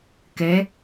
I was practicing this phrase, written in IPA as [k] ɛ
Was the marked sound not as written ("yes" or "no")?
no